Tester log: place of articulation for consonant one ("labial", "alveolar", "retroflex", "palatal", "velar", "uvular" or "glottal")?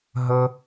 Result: glottal